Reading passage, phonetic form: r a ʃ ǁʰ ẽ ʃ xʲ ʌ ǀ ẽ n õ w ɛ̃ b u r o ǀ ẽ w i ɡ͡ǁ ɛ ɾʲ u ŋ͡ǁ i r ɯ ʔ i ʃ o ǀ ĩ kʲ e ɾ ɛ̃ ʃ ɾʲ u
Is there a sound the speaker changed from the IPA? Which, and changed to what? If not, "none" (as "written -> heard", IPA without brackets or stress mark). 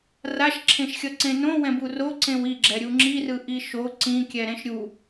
e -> ɛ